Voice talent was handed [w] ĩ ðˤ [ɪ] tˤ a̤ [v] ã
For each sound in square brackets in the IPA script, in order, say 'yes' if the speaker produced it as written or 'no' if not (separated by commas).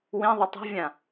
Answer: yes, yes, no